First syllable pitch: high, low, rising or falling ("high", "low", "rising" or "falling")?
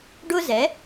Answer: high